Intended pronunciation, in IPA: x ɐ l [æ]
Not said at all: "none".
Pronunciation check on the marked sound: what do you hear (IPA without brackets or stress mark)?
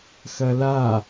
a